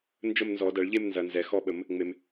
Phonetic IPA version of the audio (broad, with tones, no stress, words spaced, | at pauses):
nd͡ʒə˥˧m nzɔ˨˩˦dɐ˨˩˦ɭʎe˥˧m nzɐ˨nzɛ˨ xɔ˥˧ɓə˨˩˦m | ŋ͡me˨m